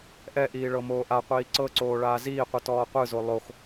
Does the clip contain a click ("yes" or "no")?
yes